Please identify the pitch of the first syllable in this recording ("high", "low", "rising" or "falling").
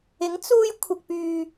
rising